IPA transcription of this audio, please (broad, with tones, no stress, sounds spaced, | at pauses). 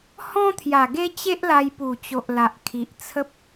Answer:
h ɔ̃˦ t̪ʰ j a˨˩ ɡ e˦ t͡ɕ e˦ ʔ l a˧ j p u˨˩ t͡ɕ o˨ ʔ l a˨ ʔ kʰ i˨ ʔ t͡sʰ ə˦ p̚